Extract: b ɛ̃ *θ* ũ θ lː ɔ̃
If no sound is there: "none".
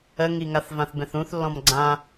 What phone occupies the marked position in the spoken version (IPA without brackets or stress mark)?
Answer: θ